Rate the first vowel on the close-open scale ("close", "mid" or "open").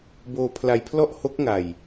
mid